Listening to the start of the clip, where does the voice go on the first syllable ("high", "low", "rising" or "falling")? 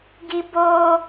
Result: high